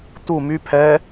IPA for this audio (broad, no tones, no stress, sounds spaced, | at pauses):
t u m y pʰ ɛ